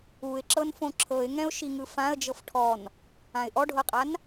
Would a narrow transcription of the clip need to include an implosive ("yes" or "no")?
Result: no